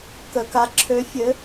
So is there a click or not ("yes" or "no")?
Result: yes